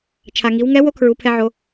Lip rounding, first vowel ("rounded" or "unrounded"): unrounded